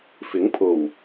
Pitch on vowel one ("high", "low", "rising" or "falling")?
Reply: rising